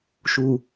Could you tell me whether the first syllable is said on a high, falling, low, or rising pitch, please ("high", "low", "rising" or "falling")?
low